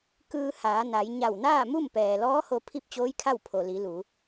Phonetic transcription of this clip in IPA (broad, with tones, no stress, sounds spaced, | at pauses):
k ɯː˧ h aː˩˧ n a˩˧ j ɲ a˧˩ w n aː˥˨ m u˥˨ m p ɛː˩ l ɔː˧˥ h o˧ pʰ i˥˨ p̚ t͡ɕ oː˧˥ j kʰ a˥˨ w pʰ o˩ l i˩˧ l u˩˧